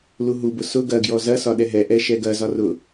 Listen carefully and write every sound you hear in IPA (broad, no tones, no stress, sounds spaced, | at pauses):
l u ɦ u b ʊ s ʊ ɡ ɐ ɡ j ɔ z ɐ s ɒ ɗ ɛ ɦ ɛ ʔ ɛ ʃ ɛ ɡ ɐ z ɒ r ʊ